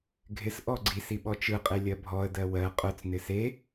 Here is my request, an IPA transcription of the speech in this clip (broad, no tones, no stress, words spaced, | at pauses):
ɡʱɪs ʔɔɡ͡ǀis iɓɔt͡ʃɯ qʼelʲɜbʱɔə̯ dɜwɜ qʼœt͡s nɪse